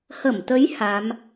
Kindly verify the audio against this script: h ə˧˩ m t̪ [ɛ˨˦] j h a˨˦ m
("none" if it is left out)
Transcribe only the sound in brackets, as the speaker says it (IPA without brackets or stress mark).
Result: ə˨˦